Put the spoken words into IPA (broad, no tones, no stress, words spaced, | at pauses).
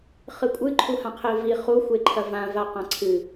χɨkʷʼɨ ǃʰuhãqʰevi χu xʷeǃʰɐvã vaqãǀʰɨ